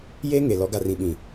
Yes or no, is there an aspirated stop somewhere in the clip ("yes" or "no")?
no